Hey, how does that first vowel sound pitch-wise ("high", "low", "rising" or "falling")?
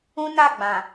high